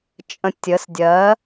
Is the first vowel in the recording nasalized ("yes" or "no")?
yes